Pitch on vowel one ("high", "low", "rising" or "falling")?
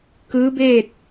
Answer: rising